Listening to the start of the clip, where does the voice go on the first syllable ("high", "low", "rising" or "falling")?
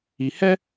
low